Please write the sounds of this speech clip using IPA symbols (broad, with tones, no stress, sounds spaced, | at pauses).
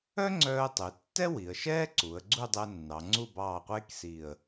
œ˥ ŋ͡ǀ œː˧ ə̯ tˤ e˩˧ tː ɛ˥ w i˩˧ ə̯ ʃ ɛː˥ ǀ u˩˧ ə̯ ɡ͡ǀ u˥˧ dˤ ɛ˧ nː ɑ˩˧ ŋ͡ǀ u˥˧ b ɑː˧˩ qʷ eː˥ k s i˧˩ ə̯